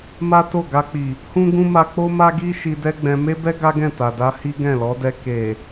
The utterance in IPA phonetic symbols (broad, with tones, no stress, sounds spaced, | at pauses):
m a˦ t o˦˨ ɡ a˧ k͡p i˨ | h ũ˦ ɡ ũ˦ m a˧ k͡p o˦ m a˦ ɡ i˦ ʃ i˧ d ɛ˦ ɡ͡b ɛ̃˧ m e˦ b ɛ˦ ɡ a˦ ɡ ɛ̃˦˨ t a˨ d a˧ h i˦ ɡ ɛ̃˦˨ l ɔ˨˦ d ɛ˧ k e˨